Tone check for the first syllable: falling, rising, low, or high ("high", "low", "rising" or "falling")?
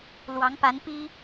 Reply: rising